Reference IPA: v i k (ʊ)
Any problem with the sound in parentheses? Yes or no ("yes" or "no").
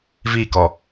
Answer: yes